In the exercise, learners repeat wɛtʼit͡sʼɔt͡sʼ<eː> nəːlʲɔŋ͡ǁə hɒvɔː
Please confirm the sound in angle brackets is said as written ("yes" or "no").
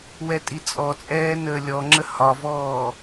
no